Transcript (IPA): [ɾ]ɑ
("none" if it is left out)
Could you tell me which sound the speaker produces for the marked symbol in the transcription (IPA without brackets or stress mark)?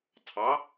tʰ